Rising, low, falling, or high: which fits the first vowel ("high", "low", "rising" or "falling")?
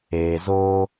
low